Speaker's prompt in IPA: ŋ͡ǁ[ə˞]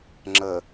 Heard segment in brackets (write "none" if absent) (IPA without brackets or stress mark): ə